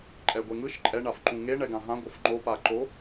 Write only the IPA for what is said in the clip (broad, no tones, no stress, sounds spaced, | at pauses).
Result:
ǃʼ ɛ ɡʷ e ŋ ɯ ʃ ǃʼ ɛ ɳ a f ǃ ũ ŋ e ɳ ɛ ɡ ã ɦ ã ɡʷ ʌ f ŋ͡ǃ o p a ǃ o